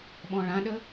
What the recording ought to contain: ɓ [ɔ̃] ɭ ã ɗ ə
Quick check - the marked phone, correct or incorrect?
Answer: correct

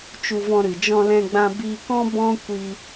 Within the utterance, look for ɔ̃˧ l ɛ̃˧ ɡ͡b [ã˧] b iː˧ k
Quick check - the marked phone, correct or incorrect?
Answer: correct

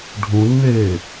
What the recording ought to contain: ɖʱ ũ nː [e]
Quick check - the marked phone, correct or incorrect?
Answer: incorrect: eː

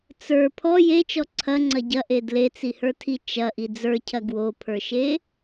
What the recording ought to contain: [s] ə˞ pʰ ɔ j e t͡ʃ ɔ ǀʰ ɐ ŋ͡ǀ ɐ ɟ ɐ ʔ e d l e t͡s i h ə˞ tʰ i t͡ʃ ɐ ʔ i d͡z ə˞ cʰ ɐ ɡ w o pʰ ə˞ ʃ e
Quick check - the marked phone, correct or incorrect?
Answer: incorrect: t͡s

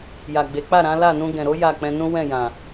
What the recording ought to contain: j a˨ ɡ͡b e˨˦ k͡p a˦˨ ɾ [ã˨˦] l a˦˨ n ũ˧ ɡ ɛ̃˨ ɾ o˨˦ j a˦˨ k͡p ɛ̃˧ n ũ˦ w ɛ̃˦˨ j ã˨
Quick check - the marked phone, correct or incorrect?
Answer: correct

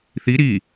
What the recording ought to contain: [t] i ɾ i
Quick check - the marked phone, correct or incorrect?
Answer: incorrect: θ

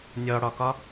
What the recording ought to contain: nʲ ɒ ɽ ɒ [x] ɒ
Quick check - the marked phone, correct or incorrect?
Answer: incorrect: k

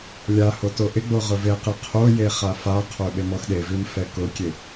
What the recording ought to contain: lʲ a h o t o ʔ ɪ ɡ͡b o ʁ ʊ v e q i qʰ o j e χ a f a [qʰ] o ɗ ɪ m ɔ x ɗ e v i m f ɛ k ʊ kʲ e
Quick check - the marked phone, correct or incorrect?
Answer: correct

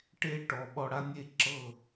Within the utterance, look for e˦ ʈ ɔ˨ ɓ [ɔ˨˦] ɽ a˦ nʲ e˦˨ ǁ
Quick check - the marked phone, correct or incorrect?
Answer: incorrect: ɔ˧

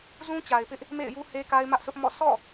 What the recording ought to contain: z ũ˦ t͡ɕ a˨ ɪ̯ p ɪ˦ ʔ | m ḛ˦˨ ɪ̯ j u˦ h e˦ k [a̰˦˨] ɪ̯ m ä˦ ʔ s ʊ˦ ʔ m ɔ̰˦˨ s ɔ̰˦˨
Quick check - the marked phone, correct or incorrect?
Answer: incorrect: a˦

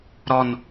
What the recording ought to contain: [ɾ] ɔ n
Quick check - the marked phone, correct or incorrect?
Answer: correct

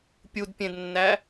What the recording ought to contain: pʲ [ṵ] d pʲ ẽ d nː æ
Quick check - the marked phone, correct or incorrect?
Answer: incorrect: u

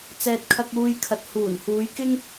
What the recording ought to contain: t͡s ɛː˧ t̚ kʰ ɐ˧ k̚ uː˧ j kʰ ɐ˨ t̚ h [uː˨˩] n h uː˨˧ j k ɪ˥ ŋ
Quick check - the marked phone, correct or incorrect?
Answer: correct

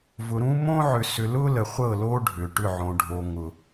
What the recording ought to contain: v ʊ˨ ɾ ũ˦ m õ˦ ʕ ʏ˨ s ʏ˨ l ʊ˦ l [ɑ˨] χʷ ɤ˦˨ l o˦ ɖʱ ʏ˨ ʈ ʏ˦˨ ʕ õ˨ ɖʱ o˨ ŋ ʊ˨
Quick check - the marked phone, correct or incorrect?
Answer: incorrect: ə˨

